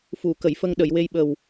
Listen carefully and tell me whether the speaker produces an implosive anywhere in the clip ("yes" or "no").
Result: yes